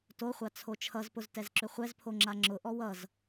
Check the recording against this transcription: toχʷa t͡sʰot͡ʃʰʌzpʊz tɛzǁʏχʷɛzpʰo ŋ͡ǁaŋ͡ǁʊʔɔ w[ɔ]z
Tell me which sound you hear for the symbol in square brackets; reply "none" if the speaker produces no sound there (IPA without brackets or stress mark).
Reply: ʌ